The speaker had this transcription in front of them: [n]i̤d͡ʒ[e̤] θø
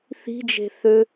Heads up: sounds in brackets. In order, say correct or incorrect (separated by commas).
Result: incorrect, correct